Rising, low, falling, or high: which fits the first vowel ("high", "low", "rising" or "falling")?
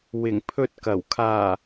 low